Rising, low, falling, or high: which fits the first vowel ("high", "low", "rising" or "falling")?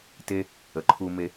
high